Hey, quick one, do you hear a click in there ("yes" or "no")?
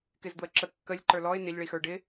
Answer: yes